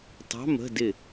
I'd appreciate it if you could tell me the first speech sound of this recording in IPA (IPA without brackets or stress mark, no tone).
tˤ